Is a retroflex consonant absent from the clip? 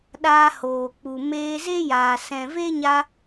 yes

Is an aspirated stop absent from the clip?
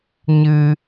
yes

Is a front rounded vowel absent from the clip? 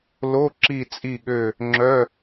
no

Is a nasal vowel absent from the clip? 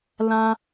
no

